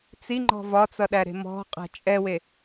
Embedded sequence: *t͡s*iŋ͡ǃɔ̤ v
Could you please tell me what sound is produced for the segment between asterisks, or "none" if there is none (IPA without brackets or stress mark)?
t͡s